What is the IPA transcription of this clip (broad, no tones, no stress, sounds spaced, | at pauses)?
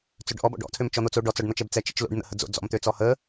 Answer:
t͡s ø ɖ ʔ ɔ b ɔ̰ ɖ ɔ̰ tʰ ø m t͡ʃ ɔ n̪ o t͡s o ɖ ɔ t͡s ɔ ɖ n̪ ɔ t͡ʃ ɛ b t͡s ɛ t͡ʃ ḭ t͡ʃ l o̰ ɖ n̪ ə̰ h ə d͡z o̰ d͡z ɔ̰ m t̪ ø t͡s ɔ h ə